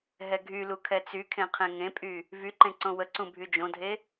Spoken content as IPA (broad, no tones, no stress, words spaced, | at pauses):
ɦɛɡʱylu kʰɛt͡sykʰẽ qʰẽŋẽpʼy | vyǃẽ ǀõwəǀũ bʱyd͡ʒõdʱe